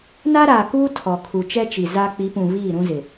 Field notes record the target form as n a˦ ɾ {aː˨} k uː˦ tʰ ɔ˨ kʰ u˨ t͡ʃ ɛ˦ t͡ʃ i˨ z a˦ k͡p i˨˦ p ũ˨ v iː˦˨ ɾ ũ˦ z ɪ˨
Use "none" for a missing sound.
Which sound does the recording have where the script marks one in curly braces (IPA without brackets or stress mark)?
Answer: aː˨